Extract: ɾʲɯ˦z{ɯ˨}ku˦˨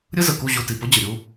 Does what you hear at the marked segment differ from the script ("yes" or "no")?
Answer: yes